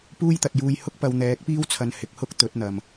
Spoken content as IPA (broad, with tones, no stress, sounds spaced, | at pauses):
p uː˥ j t̪ ɐ˨ t̚ j uː˧ j h ʊ˥ k̚ p ɐ˨˧ w n̪ ɛː˨˥ k̚ p iː˥ w t͡sʰ ɐ˨˧ n h ɪ˨˥ k̚ h ʊ˥ k̚ t̪ ɵ˨˥ t̚ n̪ ɐ˨ m